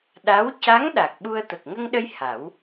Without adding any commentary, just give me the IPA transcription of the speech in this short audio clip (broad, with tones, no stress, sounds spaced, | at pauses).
ɗ a˧˥ w c a˧˥ ŋ ɗ a˨˩ k̚ ɓ u˧ ə̯ t̪ ə˨˩ k̚ ŋ ə˧ ŋ ɗ ə˧ j h a˨˩˦ w